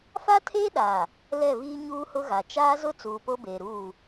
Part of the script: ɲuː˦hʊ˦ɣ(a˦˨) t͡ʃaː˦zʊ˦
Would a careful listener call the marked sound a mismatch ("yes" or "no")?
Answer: yes